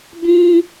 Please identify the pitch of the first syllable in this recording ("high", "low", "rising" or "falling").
high